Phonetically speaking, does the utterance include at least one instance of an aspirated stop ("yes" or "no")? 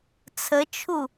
yes